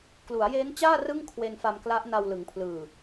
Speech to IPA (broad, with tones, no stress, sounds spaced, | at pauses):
k l u˩˦ a̯ j eː˦˥ n t͡ɕ aː˥˩ r ɯ˥˩ ŋ kʰ w e˧ n f a˧ m k l a˦˥ ʔ n a˧ w l ɯ˩˦ ŋ pʰ l ɯː˨˩